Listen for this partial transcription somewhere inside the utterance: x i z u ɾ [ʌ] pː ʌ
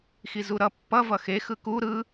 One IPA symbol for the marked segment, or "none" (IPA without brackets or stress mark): ʌ